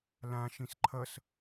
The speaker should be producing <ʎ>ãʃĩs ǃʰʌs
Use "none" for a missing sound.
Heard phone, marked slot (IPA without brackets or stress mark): l